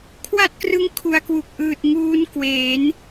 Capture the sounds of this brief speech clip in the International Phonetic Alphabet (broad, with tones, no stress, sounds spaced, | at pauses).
kʰ w a˥˩ t̚ k r ɯ˦˥ ŋ kʰ u˧ a̯ k w u˨˩ k̚ ʔ ɯː˨˩ t̚ ŋ uː˧ n k w eː˩˦ n